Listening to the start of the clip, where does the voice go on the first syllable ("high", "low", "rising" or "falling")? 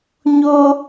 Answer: high